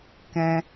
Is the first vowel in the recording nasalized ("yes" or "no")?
yes